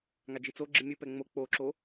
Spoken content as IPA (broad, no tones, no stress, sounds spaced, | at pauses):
ŋ a d͡ʒ i t͡s o ɡ͡ǁ ɨ mʲ ɨ p ɛ ŋ͡m o k͡p o ǁ o